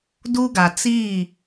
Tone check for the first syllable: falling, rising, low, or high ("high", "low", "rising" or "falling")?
high